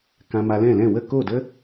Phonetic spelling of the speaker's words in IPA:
kã˧ma˧ lɛ̃˦˨lɛ̃˦˨ wə˦˨ko˦˨də˦

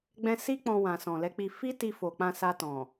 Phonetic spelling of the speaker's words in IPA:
ɡ͡bɛ̃˧ si˦ k͡pɔ̃˧wã˨ sɔ̃˨lɛ˨˦k͡pi˧ fi˦ti˧ fo˨k͡pã˧sa˧ tɔ̃˨

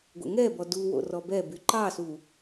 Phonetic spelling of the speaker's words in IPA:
ɡʷɛ̰ŋɛbɔ du wo̰rɔbɛby ǃɑsu

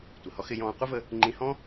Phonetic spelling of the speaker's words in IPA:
tʷɪ˩hɔ˧˥xɪ˧ jɔ̃ː˧ qʷə˥və˧ | ŋ͡ǃĩ˧hɔ̃˥

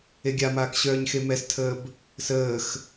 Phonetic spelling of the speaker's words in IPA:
eɡʲamaːk ɕœːɲxemɛstʰəːb | səːx

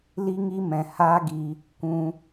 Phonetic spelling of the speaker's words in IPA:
li˦ŋi˦mɛ̃˨ haː˦ɡi˧ | kʷũ˧

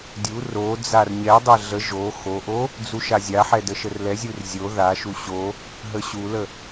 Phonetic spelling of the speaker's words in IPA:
dʲu ro d͡zarɲɛdˤɛ ɮə ʒo xoʔo | d͡zuʃazʲaħɛ dəʃərlɛzʲur zʲo ðaʃu ɕo | ɦəɕulə

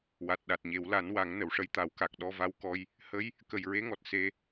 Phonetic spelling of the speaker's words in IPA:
wa˨˩t̚ɗa˨˩t̚ɲe˨˩˦w la˨˩˦n wa˨˩˦ŋ nə˨˩˨wʂə˧jt̪a˨˩˦w ka˨˩k̚ ɗɔ˧va˧wkɔ˧j | hə˧˥j | kə˨˩jɹe˧˥ŋɔ˨˩t̚ se˧

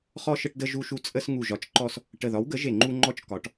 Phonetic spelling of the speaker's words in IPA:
χɔ˧ʃə˧ʈdə˧ ʒu˧ʃu˧ t͡sʼə˧s ŋu˨˩ʒɒ˩˥t͡ʃǃɔ˧s | ʈə˨˩ðɒ˩˥wɡə˩˥ ʒe˨˩ŋ͡ǃu˧ŋ͡ǃɔ˧t͡ʃ kɒ˩˥ʈ

